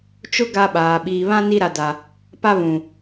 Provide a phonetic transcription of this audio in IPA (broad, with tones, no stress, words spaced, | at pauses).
t͡ʃʊ˦ ɡa˦ɓaː˨ ɓiː˨βã˦ ni˦ɾa˨da˨ | pa˦βũ˨